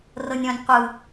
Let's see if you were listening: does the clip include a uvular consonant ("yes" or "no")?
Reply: yes